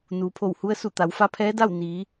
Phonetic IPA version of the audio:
n uː˩ pʰ o˧˩ w h u˧ ə̯ s u˧˩ t̪ a˩˧ w f a˧˥ pʰ ɛː˧˥ d a˥˨ w n iː˩˧

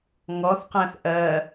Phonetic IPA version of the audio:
ŋ ɔ θ q æ̃ θ ʔ ɜ

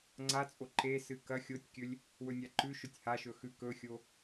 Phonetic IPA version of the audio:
ŋ͡ǀ a t͡sʼ o ǃ e s ɨ k ɐ xʲ o tʲ kʲ ɵ lʲ | w ɵ nʲ a ǃ ʉ ʃ ɵ tʲ h a ʃ ɵ x ʉ k ɵ xʲ o

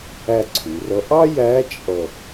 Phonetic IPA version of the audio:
æ˦˨ ǀʰ u˩˧ r ʌ˧˥ ʔ ɑ˥ j æ˧˥ t͡ʃʼ ʌ˦˨

